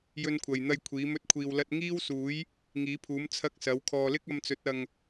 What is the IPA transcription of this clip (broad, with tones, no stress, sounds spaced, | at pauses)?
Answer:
j ɵ˧ n kʷʰ ɐ˨ j n̪ ɐ˧ j kʷʰ iː˨˥ m ɵ˥ t̚ kʷʰ iː˧ w l ɐ˥ t̚ ŋ iː˥ w s uː˨˥ j | ŋ iː˨˥ pʰ uː˨˥ m t͡sʰ ɐ˥ k̚ s ɐ˨˥ w kʰ ɔː˨ l ɪ˥ k̚ ɐ˧ m t͡s ɵ˨˥ t̚ ɐ˨ ŋ